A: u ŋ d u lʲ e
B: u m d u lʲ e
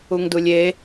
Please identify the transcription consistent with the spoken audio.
A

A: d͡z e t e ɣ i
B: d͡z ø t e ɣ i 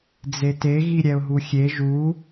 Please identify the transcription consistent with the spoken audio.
A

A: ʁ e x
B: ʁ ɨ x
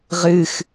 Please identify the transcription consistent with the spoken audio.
B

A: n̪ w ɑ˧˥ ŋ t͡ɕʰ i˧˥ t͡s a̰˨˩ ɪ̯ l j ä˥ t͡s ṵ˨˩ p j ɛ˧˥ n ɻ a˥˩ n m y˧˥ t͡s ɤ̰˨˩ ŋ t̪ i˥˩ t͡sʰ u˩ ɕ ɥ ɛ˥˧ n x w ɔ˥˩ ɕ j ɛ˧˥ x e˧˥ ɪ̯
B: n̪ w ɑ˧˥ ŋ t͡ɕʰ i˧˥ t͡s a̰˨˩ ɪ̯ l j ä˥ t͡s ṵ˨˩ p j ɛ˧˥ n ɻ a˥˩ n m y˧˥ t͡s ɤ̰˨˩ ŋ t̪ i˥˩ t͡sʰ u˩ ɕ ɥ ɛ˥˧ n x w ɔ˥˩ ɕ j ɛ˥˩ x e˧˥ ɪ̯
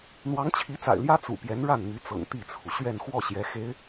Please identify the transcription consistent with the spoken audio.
A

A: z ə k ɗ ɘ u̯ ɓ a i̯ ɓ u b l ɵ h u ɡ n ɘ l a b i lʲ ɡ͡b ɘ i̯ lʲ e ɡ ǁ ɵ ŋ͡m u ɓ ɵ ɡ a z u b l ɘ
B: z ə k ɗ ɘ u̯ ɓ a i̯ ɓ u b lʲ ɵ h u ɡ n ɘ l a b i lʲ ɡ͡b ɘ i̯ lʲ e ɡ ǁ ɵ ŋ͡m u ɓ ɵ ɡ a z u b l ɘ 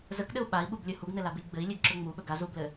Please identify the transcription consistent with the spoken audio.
B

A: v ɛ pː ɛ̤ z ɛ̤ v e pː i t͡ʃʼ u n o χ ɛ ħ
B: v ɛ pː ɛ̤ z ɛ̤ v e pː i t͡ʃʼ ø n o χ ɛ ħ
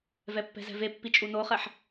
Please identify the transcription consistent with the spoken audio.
A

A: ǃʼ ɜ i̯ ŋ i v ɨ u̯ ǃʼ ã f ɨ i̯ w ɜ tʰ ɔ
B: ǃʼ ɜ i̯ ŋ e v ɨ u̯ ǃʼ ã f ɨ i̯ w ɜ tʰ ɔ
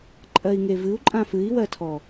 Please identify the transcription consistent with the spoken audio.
B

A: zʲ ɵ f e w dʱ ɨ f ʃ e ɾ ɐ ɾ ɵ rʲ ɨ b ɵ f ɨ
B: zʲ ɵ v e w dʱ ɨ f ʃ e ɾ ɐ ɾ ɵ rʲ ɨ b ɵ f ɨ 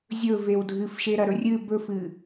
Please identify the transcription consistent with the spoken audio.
B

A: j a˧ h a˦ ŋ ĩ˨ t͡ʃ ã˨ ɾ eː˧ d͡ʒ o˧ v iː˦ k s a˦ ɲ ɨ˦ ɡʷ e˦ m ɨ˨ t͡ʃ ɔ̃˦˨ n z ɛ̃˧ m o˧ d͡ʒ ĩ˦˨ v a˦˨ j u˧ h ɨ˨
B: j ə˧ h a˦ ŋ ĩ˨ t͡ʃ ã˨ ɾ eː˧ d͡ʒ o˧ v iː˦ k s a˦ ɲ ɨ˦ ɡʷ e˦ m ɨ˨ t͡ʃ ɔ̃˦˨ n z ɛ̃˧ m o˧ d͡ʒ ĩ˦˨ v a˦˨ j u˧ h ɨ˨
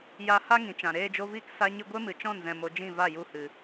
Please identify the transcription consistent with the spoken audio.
A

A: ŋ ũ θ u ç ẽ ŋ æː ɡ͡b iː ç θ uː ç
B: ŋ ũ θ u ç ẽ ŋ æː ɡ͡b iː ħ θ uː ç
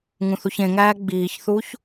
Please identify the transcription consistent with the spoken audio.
A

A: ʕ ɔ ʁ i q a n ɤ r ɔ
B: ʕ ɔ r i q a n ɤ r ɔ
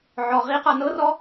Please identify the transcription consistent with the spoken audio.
A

